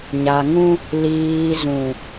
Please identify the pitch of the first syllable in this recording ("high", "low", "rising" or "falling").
low